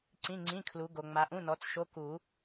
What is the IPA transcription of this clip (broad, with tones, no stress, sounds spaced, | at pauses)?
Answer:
ǀ ĩ˧˥˧ ŋ͡ǀ ĩ˧˥˧ kʰ l u˨˦ ɡ o˨ ŋ͡m a˨˦ ʔ ũ˧˥˧ n ɔ˨˦ t͡s ʃ o˧˥˧ k u˨˩˦